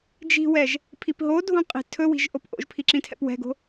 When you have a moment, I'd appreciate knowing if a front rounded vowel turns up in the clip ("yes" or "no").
no